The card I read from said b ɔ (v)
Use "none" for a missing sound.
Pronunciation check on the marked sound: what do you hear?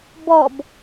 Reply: b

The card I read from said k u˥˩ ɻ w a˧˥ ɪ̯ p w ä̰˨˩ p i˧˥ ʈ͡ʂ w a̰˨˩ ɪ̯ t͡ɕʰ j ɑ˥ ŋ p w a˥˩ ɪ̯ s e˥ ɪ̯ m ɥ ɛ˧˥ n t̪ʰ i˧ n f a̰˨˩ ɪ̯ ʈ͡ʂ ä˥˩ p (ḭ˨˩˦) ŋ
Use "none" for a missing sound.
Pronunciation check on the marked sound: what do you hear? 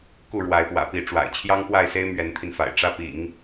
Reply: ḭ˨˩˦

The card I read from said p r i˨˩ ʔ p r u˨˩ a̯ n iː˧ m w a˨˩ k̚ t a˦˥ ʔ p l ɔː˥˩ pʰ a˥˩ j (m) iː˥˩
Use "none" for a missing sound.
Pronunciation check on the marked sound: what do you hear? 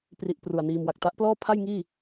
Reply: ŋ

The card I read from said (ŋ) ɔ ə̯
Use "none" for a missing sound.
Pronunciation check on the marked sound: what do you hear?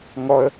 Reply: ŋ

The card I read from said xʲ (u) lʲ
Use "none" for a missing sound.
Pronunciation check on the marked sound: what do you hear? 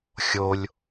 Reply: o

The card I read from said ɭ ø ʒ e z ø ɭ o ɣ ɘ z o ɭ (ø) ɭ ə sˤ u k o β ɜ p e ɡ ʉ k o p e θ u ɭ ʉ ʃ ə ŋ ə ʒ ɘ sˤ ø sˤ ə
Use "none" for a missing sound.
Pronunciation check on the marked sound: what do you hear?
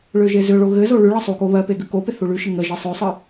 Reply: ʉ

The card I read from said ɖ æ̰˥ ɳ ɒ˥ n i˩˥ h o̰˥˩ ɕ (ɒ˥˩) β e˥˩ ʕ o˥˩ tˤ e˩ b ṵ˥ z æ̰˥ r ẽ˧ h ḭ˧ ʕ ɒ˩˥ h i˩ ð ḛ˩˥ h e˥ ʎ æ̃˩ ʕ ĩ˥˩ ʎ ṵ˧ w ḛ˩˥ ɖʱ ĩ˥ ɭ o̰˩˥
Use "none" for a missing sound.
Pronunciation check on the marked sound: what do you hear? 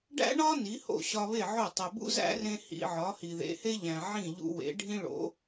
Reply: ɒ˧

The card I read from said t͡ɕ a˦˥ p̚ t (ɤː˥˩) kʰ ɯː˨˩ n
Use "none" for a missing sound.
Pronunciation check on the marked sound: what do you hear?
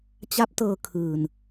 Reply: ɤː˧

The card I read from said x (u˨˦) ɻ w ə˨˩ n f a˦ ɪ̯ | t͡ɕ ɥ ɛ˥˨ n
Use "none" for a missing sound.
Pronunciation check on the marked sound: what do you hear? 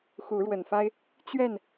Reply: u˨˦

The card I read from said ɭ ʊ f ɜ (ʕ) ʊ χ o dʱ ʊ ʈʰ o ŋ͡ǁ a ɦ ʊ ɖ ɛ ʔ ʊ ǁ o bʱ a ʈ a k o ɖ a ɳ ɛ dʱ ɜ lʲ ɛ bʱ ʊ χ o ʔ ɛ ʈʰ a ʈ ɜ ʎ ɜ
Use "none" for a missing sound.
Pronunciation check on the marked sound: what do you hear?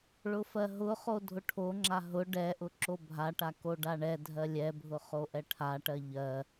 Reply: ɦ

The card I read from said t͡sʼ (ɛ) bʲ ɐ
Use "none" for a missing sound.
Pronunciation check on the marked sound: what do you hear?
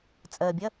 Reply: ɜ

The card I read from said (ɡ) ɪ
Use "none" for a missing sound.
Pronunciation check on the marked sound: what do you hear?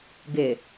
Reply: ɡ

